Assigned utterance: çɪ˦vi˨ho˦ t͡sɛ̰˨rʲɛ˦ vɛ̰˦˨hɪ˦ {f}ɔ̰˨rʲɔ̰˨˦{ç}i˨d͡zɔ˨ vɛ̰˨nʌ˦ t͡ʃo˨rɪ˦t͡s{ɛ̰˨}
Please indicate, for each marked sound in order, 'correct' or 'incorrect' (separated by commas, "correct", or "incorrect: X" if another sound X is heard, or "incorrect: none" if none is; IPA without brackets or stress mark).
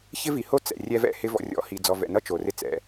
incorrect: v, incorrect: h, correct